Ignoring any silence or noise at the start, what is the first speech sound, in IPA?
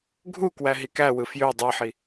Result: ɡʱ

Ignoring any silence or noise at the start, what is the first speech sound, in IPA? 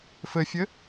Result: f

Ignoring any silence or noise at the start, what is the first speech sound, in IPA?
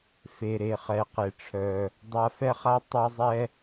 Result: f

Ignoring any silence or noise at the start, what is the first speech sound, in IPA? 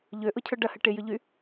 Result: ʎ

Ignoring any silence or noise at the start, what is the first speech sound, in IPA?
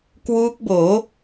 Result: k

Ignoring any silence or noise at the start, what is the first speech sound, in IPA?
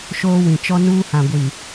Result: ʃ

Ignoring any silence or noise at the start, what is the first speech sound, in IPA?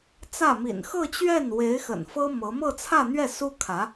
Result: t͡s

